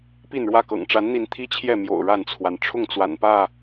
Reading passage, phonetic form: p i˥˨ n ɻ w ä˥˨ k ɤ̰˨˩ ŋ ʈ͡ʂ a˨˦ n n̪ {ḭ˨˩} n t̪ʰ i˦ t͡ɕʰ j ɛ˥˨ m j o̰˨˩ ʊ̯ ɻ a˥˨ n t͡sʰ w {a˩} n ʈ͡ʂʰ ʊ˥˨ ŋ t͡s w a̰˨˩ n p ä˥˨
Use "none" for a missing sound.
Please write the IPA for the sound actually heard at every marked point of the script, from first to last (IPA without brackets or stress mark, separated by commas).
i˨˦, a˩